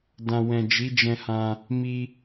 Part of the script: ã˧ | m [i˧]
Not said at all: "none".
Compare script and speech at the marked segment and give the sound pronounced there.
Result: i˧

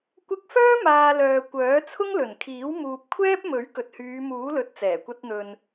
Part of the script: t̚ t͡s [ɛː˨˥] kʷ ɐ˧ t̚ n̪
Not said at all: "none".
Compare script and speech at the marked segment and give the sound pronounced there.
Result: ɛː˨˩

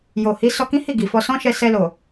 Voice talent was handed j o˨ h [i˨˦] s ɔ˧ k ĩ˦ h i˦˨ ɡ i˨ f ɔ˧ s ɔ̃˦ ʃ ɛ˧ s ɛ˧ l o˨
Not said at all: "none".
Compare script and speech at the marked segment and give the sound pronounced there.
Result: i˨˦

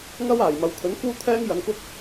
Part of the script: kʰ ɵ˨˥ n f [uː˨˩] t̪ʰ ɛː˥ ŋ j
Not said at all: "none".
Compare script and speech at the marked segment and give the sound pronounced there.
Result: uː˥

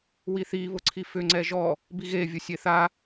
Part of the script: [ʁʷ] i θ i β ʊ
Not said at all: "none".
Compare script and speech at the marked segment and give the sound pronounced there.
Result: w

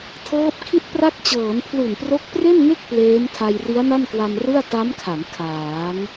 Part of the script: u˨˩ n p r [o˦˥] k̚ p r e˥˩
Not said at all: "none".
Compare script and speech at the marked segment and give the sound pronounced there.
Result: o˦˥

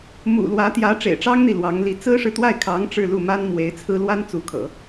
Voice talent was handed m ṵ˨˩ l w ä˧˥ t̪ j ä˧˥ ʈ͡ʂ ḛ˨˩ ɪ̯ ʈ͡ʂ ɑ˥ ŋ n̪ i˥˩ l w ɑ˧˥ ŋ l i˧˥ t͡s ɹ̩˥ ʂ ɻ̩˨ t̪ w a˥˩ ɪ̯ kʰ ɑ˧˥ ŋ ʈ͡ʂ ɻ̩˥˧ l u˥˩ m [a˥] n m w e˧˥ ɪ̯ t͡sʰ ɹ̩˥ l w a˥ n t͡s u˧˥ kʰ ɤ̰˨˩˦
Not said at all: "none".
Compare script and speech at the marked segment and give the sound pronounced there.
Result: a˥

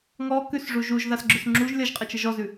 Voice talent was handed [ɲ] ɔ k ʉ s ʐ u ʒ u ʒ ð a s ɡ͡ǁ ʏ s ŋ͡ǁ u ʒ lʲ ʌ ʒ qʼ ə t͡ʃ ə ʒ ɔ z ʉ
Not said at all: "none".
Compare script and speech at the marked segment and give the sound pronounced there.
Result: ŋ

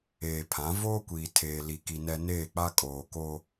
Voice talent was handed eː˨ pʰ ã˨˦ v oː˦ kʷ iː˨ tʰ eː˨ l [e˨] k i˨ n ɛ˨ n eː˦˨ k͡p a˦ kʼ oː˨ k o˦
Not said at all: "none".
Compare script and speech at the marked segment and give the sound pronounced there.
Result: i˨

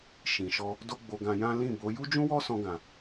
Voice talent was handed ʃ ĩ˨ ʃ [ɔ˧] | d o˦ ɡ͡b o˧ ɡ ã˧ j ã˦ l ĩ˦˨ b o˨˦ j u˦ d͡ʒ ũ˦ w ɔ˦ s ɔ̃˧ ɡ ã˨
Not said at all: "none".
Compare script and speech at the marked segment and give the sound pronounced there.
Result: ɔ˧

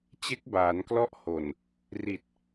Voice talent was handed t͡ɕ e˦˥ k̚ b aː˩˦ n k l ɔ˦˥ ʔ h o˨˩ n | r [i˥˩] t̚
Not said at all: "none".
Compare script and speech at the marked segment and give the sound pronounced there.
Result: i˨˩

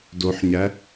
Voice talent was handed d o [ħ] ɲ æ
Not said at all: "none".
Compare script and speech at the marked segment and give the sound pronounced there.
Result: ħ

